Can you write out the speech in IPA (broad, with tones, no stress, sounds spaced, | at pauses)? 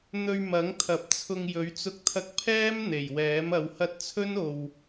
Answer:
n̪ ɵ˧ ɥ m ɐ˨˥ ŋ t̪ʰ ɐ˨ p̚ t͡sʰ ʊ˧ ŋ j ɵ˨˥ ɥ t͡s ʊ˥ k̚ t̪ʰ ɐ˥ k̚ pʰ ɛː˥ m n̪ e˨˩ j w ɛː˨˥ m ɐ˨˧ w h ɐ˥ t̚ t͡sʰ ɵ˥ n o˨ w